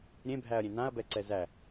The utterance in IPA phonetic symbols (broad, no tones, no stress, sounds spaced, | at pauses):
ɾʲ ẽ bʱ æ ɐ̯ ɾʲ ẽ n ã ɐ̯ b ɛ ǀ ɛ z æ